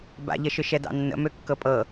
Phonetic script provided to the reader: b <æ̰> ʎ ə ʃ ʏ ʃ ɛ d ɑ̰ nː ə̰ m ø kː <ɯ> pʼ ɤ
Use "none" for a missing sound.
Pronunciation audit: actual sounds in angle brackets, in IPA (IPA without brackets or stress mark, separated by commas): a̰, ɤ